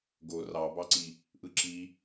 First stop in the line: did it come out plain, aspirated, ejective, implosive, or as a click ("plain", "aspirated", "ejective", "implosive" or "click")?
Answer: plain